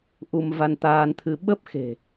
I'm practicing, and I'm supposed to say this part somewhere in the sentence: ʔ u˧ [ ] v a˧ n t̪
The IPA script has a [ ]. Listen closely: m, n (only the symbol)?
m